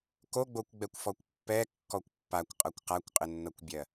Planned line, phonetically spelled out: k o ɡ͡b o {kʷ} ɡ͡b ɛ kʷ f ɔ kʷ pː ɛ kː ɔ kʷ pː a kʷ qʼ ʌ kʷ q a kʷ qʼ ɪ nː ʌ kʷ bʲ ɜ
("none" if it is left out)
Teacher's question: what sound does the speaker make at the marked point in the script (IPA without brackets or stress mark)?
kʷ